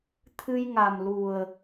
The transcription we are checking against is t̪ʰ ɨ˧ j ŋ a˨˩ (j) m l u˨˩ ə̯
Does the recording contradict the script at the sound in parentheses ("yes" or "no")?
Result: yes